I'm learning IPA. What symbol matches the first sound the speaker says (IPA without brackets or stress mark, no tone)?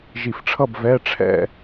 ʒ